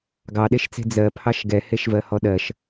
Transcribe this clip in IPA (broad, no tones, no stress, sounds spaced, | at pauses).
ɡ ɑ ɗ e ʃ t͡s e̤ d͡z ɜ pʰ ɑ ʃ ɡ ɛ h e ʃ v ɜ h ɔ ɗ ɜ ʃ